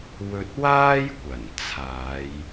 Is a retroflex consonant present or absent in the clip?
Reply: absent